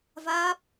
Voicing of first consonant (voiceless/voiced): voiced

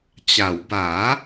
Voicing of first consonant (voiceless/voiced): voiceless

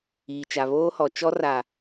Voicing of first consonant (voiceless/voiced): voiceless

